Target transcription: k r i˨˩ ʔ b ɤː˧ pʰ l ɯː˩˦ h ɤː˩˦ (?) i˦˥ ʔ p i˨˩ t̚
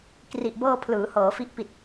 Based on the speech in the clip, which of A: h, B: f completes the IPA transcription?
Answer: B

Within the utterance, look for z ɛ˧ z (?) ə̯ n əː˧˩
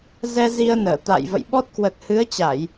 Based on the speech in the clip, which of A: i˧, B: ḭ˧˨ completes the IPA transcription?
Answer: A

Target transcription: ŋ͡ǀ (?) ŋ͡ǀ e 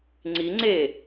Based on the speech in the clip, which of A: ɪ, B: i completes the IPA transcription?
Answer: B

